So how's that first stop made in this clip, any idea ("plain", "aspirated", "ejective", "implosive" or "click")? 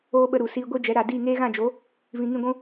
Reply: implosive